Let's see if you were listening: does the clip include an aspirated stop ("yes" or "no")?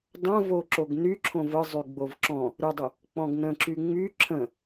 yes